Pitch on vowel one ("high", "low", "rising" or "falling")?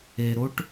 low